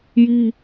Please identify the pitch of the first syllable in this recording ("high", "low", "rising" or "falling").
high